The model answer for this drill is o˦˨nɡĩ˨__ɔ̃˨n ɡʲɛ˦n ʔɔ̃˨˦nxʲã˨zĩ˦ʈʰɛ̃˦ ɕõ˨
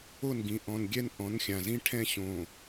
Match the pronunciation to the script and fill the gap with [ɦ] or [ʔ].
ʔ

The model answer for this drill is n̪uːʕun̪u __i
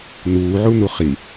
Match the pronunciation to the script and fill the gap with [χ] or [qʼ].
χ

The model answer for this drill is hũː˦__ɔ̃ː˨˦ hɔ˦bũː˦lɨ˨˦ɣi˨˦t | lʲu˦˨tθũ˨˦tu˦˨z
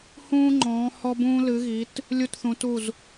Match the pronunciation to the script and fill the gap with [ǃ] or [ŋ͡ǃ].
ŋ͡ǃ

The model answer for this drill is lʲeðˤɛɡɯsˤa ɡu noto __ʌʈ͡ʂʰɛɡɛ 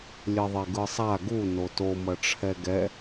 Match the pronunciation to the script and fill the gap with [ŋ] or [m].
m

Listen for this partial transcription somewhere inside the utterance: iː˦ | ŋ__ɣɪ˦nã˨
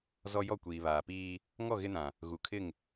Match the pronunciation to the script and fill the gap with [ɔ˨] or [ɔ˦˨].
ɔ˦˨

